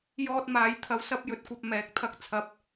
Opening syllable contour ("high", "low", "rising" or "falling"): high